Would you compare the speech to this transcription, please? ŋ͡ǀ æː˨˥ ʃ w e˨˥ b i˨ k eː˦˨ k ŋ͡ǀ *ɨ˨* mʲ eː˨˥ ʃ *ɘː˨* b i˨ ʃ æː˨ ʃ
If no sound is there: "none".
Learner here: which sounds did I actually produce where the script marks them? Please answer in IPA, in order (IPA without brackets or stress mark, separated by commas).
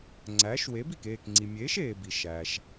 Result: i˨, eː˨